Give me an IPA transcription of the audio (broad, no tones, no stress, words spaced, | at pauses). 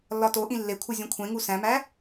lːɒtoʔĩ lːekʷʰi zʲũkʷʰẽŋu sæ̃mæ